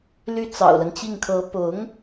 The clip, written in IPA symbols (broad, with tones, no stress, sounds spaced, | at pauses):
l y˥ t͡s ɑ̰˨˩ ʊ̯ l ə˦ n t͡ɕ i˥˩ ŋ kʰ ɤ˧˥ p ʊ˧˥ ŋ